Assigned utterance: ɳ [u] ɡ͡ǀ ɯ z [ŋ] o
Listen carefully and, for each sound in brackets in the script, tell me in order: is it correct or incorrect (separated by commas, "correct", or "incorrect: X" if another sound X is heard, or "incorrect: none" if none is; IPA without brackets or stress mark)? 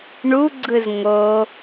correct, correct